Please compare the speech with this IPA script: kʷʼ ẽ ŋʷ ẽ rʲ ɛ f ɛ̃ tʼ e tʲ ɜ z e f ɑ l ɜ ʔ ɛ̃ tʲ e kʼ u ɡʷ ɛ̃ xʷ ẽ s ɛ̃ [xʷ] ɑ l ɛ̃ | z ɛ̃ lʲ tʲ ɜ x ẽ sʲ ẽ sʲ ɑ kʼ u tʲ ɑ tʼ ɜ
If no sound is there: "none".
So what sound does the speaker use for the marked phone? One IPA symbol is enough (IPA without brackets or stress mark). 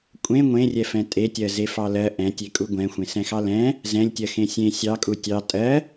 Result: x